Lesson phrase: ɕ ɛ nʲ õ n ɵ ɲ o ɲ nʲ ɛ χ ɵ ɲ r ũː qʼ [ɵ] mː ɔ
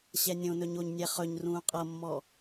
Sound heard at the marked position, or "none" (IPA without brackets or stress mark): ɤ